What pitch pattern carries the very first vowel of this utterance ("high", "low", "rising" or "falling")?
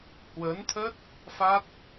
rising